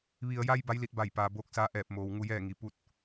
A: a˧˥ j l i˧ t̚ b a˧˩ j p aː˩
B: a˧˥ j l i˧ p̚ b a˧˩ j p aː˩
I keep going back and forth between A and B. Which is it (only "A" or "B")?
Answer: A